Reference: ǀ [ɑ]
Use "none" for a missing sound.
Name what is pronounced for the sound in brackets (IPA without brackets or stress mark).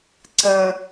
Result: ɐ